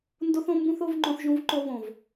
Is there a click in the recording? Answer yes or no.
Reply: yes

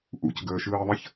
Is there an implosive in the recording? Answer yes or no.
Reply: no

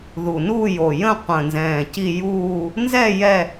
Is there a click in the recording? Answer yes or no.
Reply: no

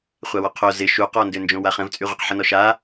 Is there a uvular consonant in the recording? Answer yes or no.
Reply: yes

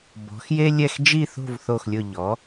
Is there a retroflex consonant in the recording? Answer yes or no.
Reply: no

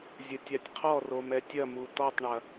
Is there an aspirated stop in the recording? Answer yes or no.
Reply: yes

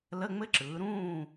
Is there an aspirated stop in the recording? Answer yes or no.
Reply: no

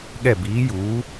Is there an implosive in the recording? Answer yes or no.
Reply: yes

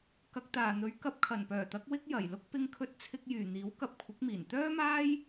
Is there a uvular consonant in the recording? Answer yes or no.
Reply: no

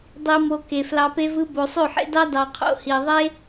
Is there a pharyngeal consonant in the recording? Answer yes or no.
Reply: yes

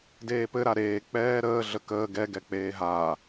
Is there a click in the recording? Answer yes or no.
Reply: no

